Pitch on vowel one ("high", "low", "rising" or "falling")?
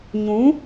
rising